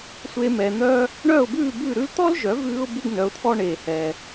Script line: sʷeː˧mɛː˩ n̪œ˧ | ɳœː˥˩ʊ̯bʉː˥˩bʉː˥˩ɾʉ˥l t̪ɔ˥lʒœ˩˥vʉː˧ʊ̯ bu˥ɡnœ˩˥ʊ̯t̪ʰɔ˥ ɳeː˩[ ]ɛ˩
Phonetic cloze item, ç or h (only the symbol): h